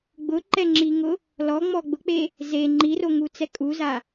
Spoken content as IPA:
ɡ͡b ʊ ǃ ɛ ŋ͡ǁ i ŋ ʊ | l ɔ ŋ͡m ɔ ɡ͡b ʊ k͡p e | z e ŋ͡ǃ i r o ŋ u t͡s ɛ kʼ u z a

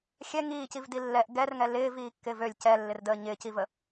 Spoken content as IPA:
xʲ ɛ ŋ iː c i v d i lː ɛ ʔ ɡ ɛ r ŋ ɛ l ɪː v iː kː ɪː v ø lʲ c ɛ lː ɪ r d əː ɲ ɪː c i v ə

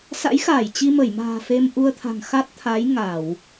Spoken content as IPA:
s a̰˧˥ j x aː˧˩ j t͡ɕ i˧ m ə˧˩ j m a̤ː˨˩ f e˧ m ʔ u˧ ə̯ t̪ʰ a̤˨˩ ŋ x a˦˥ t̚ t̪ʰ a˨˦ j ŋ a˧˩˨ w

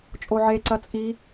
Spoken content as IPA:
t͡ʃʼ o ʕ e ǀ ɐ t͡sʼ i

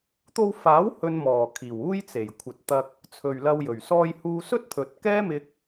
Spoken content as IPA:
t̪ o˧ w f aː˨˥ w h ɵ˧ n m ɔː˨˩ kʰ iː˨˩ w uː˥ j t͡s e˨˩ j kʷʰ ɐ˨ t̚ t̪ ɐ˧ k̚ | t͡sʰ ɵ˨ ɥ l ɐ˧ w j ɵ˨˩ ɥ s ɔː˧ j h uː˧ s ɵ˥ t̚ t̪ʰ ɵ˨ t̚ k ɛː˥ m ɪ˧ k̚

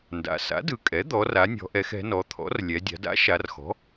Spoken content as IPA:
n d a̰˩˧ s a̰˩˥ d ɯ˩˧ kʼ ɛ˩˥ d̪ ɔ˩˧ r a˩˧ nʲ ɔ̤˩˧ ʔ ɛ˩˧ x ɛ̤˩˧ n ɔ˩˧ t̪ʰ ɔ̰˩˥ r lʲ ɛ˩˧ dʲ a̤˩˧ d a̰˩˥ ʃ a˩˧ r x ɔ̤˩˥

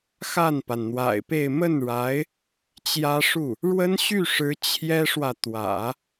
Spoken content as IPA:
x a˥˩ n p a˩ n n̪ w a̰˨˩ ɪ̯ p e˥˧ ɪ̯ m ə˥˩ n ɻ a˧˥ ɪ̯ | t͡ɕ j ä˥ ʂ u˥˩ | ɻ w ə˥ n ɕ y˥˩ ʂ ɻ̩˧˥ t͡ɕʰ j ɛ˥ ʂ w ä˨ t̪ w ä̰˨˩˦

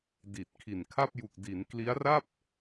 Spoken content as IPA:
d i˨˩ t̚ kʰ i˨˩ n kʰ a˥˩ p̚ j u˨˩ k̚ d i˩˦ n k l i˦˥ a̯ r a˥˩ p̚

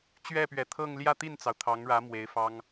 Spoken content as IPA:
t͡ɕ ɥ ɛ˥˩ p ɥ ɛ˧˥ t̪ʰ ɤ˥˧ ŋ l j ä˥˧ t̪ i˥˩ n t͡s ɑ˩ ʊ̯ t̪ʰ ɑ˧˥ ŋ ɻ ä˧˥ m w e˧˥ ɪ̯ f ɑ˥ ŋ

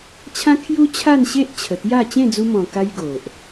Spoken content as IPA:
t͡ɕʰ ã˦ kʰ j u˦ t͡ɕʰ a˥˧ n ɕ e˦ ʔ t͡ɕʰ ə˨˩ t̪ j a˥˧ t͡ɕ ẽ˥˧ d͡z u˧ m ɔ̃˨˩ k a˦ j ɡ o˨ ʔ

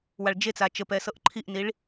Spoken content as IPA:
w a ɭ d͡ʒ e t͡s a t͡ʃ ə p ɛ s ɤ ʔ ǃʰ i ʔ n i ɭ

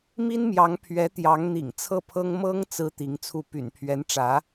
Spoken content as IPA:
m i˥ n m j ɑ˧˥ ŋ pʰ ɥ ɛ˧˥ t̪ j ɑ˧˥ ŋ n̪ ḭ˨˩ ŋ t͡sʰ ɤ˥˩ pʰ ɤ˥ ŋ m ɤ˥ ŋ t͡s ɹ̩˥ t̪ i˧˥ ŋ t͡sʰ u˥˩ p y̰˨˩ n pʰ ɥ ɛ˧˥ n ʈ͡ʂ ä˧˥

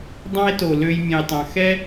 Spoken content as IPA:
dˤ ɑ̃˦ e̯ t o˨ l ø˧ j mʲ ẽ˨ j tˤ ɑ̃˨ x ɛ˦

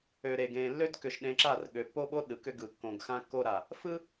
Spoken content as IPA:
ø˨ ɾ e˨ ɡ ẽ˨ lː ø˦ d k ʏ˨ ʃ ɗ ẽ˨ ǁ a˦˨ r ɠ ø˨ pː o˦ ɓ o˦ ɗ ɯ˨ k ʏ˦ ɡ ɯ˨ kː õ˨ ɡ x ã˦ kː o˦ ɾ a˨ | f ɯ˦

